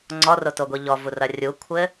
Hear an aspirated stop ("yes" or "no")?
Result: yes